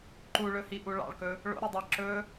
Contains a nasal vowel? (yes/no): no